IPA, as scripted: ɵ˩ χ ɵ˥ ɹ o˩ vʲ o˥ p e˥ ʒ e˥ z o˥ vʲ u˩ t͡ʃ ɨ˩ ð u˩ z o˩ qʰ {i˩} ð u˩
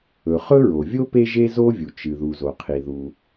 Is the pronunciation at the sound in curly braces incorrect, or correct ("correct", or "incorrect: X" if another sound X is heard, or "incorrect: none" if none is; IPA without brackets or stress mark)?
correct